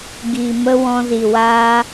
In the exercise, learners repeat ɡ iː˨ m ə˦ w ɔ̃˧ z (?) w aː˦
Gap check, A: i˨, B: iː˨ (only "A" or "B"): A